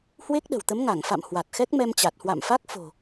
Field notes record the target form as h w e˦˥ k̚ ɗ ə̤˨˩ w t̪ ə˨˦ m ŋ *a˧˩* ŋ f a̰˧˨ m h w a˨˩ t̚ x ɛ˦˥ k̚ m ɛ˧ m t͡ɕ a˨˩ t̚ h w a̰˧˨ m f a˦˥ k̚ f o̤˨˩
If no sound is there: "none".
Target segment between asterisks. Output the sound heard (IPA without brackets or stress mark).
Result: a˧˩